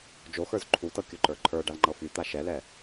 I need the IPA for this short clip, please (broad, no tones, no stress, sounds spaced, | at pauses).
d͡ʒ o x ə˞ z ǃʰ u t ɤ kʲ o ǃ ə˞ ǃʰ ə˞ ɖ a l ŋ͡ǃ ɤ f y t̪ a ʃ ɛ l ɛ